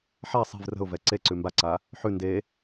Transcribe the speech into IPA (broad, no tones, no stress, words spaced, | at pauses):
ħa sˤi̤v rə̤ʊ̯vɛ ǀeǀʉ mbaǀa | ħʉ nde